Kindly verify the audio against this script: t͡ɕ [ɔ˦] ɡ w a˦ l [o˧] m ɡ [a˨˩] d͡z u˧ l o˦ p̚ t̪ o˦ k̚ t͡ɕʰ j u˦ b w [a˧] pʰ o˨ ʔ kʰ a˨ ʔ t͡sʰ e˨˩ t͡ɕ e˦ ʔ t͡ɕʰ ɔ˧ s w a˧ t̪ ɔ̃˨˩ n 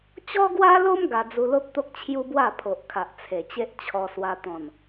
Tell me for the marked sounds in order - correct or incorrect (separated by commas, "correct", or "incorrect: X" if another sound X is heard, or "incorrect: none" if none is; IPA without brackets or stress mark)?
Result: correct, incorrect: o˦, incorrect: a˧, incorrect: a˥˧